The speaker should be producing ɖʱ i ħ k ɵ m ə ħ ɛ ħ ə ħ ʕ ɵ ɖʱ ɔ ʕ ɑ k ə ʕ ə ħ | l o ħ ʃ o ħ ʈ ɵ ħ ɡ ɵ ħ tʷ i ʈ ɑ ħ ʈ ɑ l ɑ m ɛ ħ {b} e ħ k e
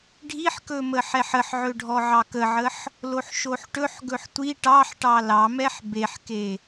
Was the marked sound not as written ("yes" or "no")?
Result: no